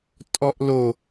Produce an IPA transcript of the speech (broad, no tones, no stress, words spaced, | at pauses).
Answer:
tʼɔʔlo